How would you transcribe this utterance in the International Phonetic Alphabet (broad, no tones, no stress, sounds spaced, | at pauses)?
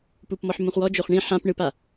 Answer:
p u p m ɔ ħ m ũ χ w ɔ d͡ʒ o χ ɳ ĩ ħ ã p ɳ ɯ p a